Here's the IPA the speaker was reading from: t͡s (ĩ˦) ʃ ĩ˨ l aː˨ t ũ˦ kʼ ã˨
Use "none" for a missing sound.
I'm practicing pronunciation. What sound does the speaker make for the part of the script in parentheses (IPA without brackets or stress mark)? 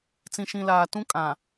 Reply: ĩ˨